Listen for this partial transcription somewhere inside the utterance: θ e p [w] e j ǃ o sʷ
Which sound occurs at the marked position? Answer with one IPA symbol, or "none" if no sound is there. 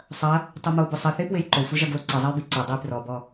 w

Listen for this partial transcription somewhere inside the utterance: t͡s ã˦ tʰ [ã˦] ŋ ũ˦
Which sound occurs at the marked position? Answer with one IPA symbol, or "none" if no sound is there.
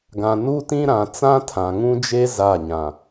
ã˨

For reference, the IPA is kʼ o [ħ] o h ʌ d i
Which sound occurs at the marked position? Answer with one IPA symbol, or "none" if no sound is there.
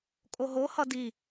ɦ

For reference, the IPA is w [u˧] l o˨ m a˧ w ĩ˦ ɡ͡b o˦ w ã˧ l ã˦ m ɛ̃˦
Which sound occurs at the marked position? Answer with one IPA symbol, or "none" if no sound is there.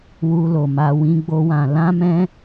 u˧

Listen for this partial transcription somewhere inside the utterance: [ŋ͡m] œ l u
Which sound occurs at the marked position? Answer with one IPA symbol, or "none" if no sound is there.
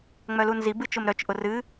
ŋ͡m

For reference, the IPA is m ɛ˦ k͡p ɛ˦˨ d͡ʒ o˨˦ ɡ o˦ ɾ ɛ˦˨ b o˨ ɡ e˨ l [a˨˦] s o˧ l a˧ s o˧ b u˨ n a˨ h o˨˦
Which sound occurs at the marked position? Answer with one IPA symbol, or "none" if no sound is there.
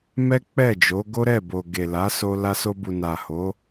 a˨˦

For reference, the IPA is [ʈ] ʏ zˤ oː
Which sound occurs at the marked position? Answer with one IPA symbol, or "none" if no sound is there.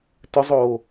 t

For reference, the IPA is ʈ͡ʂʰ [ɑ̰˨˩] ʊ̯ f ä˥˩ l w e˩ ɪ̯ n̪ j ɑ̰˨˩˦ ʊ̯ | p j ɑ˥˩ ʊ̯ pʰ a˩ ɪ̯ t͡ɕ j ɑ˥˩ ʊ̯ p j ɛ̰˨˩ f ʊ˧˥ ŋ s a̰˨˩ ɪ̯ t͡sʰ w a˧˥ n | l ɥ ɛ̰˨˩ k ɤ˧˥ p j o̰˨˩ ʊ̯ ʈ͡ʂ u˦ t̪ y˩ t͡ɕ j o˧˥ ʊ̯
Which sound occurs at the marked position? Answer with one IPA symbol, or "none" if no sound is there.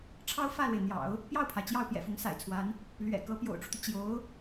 ɑ˥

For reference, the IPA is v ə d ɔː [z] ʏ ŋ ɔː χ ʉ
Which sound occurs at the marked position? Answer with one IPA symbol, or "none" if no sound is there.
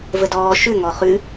ʃ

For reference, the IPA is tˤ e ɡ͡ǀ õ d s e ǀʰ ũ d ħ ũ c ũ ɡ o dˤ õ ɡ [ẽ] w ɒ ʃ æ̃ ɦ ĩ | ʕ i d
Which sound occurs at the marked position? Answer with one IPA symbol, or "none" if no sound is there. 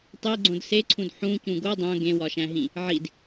ẽ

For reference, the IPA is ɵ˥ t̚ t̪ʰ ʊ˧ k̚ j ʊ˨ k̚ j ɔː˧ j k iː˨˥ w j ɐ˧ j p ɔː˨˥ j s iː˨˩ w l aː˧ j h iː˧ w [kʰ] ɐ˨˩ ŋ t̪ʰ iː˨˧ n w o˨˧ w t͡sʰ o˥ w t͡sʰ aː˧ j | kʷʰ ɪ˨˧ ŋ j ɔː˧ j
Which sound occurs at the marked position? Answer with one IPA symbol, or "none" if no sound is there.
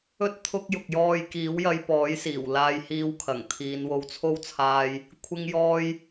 kʰ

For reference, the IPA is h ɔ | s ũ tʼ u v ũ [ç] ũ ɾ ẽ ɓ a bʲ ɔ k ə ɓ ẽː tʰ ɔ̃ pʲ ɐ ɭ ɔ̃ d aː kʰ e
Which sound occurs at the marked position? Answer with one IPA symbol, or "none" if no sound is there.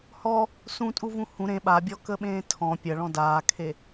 h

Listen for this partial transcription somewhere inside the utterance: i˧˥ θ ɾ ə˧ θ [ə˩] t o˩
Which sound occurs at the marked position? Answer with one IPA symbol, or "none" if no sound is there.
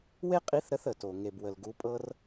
ə˩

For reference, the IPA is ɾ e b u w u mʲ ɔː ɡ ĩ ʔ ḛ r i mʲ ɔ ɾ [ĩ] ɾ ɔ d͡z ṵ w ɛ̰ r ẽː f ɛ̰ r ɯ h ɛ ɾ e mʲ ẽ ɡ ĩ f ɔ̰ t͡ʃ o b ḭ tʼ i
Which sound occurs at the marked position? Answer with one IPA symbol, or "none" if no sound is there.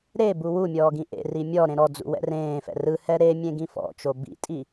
ẽ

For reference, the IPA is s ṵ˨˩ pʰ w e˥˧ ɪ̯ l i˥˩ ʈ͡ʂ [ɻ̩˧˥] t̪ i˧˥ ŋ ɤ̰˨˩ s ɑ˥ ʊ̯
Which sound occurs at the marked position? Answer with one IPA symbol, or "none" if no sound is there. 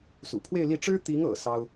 ɻ̩˥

